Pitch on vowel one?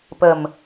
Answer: low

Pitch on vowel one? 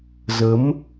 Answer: rising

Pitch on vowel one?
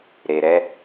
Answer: low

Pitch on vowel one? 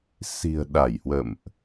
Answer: low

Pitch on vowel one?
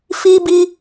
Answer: high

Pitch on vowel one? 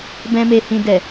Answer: high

